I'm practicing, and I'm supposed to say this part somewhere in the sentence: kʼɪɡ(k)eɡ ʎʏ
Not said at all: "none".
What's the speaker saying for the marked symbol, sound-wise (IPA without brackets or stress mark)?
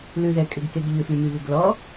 k